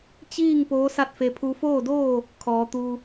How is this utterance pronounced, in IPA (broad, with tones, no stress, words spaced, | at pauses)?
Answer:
t͡ɕiː˥˨ŋ poː˧˥sa˥˨t̚fe˧ pʰu˧foː˥˨doː˥˨ | kʰɔː˩˧t̪u˧